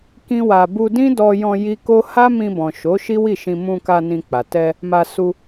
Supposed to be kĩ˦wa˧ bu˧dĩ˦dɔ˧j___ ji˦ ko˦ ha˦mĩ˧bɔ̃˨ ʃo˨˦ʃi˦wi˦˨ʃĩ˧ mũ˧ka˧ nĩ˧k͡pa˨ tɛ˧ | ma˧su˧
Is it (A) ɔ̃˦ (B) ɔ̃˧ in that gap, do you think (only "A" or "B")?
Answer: B